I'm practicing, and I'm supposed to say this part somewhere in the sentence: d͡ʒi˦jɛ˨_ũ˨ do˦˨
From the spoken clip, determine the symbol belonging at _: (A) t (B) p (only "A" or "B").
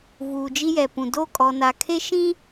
B